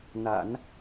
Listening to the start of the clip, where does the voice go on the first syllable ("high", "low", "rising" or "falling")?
low